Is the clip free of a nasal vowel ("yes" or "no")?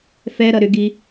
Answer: yes